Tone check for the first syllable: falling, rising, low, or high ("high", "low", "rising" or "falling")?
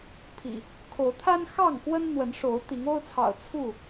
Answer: low